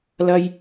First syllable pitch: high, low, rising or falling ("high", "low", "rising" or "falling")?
high